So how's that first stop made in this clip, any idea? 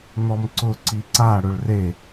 click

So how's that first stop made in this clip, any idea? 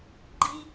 click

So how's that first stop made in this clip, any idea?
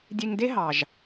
plain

